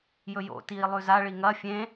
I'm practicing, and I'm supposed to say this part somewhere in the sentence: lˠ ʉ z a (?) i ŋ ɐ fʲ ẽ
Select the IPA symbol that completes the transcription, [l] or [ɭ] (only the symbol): ɭ